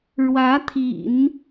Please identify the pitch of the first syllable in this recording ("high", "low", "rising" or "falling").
rising